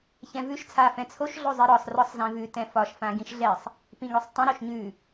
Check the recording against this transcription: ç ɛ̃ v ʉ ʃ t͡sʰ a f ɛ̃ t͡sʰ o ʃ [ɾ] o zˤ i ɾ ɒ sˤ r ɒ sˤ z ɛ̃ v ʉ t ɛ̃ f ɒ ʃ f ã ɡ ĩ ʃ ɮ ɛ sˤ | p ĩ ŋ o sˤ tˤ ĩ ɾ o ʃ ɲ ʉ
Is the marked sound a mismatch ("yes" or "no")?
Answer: yes